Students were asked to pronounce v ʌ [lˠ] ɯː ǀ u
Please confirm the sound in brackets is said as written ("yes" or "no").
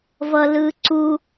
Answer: no